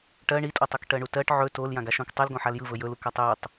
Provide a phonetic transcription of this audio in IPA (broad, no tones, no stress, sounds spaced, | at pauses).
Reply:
ʈ ɜ ɳ i tʼ o tˤ ɵ k ʈ ɜ ɳ u t ɜ ʈ ʕ ɵ t o l j ã ɡ a ʃ õ k tˤ ɯ l ɡ õ ħ a l j ɯ v ɵ j ɵ l u k a tˤ j i tˤ